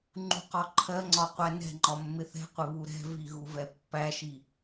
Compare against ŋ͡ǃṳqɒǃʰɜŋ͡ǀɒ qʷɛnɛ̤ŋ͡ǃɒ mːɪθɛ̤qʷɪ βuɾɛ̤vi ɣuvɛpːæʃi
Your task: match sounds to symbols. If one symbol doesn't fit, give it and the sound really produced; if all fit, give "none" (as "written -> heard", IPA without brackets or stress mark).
none